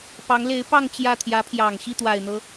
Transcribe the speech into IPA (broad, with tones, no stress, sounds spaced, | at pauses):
p ɑ˧˥ ŋ l e˧˥ ɪ̯ p ɑ˥˧ ŋ t͡ɕ j ä˥˩ t̪ʰ j ä˧˥ pʰ j ɑ˨˩ ŋ ɕ i˥˩ t̪ w a˨˩ ɪ̯ n̪ ɤ˦